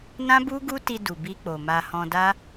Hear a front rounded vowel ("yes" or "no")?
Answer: no